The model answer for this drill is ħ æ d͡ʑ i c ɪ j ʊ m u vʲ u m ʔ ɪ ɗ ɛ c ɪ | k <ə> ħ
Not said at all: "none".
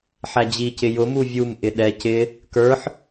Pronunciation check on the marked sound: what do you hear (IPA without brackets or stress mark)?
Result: ə˞